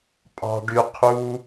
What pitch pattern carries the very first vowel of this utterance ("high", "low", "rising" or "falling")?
low